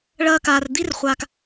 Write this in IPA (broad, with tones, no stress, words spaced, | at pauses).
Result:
ɭɐː˧kaː˨rd̪i˦r χʷa˨k